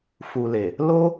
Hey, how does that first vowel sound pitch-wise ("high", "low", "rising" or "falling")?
low